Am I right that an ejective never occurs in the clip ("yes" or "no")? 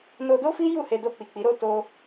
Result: yes